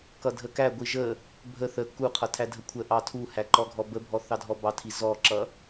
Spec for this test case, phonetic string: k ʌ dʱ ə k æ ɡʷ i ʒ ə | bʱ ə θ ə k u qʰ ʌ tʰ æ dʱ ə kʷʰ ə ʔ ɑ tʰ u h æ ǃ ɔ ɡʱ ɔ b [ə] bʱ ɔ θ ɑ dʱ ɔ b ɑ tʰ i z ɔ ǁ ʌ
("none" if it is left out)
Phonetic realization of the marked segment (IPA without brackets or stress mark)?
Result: ə